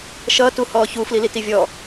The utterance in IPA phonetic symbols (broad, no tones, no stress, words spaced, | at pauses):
ʃʌːt uhɔːçu flilitivʲɔ